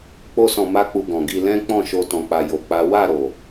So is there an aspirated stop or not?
no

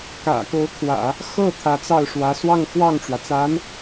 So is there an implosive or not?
no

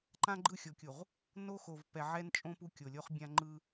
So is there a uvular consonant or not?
yes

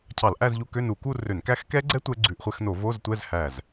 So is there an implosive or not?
no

